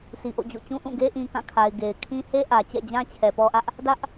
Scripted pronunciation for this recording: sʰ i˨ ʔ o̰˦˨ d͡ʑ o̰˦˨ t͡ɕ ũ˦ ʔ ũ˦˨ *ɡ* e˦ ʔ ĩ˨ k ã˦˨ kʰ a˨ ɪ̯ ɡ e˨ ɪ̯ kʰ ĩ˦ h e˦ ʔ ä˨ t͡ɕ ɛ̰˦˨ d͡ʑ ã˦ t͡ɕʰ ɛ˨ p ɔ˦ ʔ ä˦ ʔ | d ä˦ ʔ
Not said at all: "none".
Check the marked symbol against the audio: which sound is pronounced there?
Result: ɡ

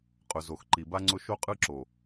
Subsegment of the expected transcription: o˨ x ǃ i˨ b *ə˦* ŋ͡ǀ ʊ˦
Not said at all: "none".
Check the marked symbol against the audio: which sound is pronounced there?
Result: a˦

